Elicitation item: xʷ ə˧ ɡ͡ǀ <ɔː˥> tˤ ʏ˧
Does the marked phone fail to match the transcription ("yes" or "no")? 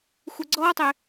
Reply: no